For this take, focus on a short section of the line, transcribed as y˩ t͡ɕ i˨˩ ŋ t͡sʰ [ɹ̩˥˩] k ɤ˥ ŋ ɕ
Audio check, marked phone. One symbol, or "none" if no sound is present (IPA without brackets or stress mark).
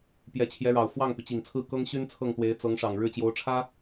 ɹ̩˥˩